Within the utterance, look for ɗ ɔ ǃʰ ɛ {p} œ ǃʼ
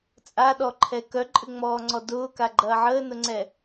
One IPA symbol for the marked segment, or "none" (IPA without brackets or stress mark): k